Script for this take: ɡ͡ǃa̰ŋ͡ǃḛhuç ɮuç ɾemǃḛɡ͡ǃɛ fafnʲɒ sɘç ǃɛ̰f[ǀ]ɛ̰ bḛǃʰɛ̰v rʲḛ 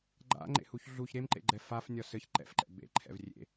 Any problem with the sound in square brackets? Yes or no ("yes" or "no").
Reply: yes